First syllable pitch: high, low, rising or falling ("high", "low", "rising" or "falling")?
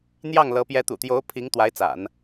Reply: falling